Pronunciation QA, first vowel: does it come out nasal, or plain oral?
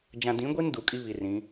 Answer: nasal